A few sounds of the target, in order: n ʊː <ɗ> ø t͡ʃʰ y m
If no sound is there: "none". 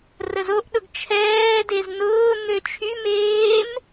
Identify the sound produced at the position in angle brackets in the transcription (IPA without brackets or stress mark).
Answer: n̪